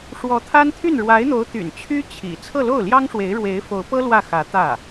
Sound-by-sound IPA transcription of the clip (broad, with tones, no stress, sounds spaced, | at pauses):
ʂ w ɔ˧˥ t̪ʰ a˥ n t̪ʰ y˥˩ n ɻ w a˧˥ ɪ̯ n̪ o˧˥ ʊ̯ t̪ y̰˨˩ n t͡ɕʰ y˥ t͡ɕʰ ḭ˨˩ t͡sʰ ɤ˥˧ l o˥˩ ʊ̯ l j ɑ˥ ŋ ʂ w e˧˥ ɪ̯ ɻ w e˧˥ ɪ̯ f o˧˥ ʊ̯ p ɤ˥ l w ä˥˩ x ä˧˥ t̪ ä˥˩